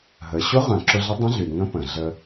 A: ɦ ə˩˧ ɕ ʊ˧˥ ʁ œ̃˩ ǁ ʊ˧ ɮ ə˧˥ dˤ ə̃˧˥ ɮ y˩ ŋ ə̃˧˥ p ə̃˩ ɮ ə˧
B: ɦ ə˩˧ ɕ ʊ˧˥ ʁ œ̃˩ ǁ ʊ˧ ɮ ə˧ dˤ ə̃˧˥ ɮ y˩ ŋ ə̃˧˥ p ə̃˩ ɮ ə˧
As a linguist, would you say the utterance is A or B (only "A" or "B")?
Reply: A